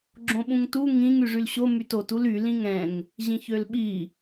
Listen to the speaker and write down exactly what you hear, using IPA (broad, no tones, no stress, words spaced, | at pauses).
ɡ͡ǁõɓũŋtu ŋĩŋ yʐylɕo mytot uly lĩŋɛ̃ŋ | ʑĩçølɓi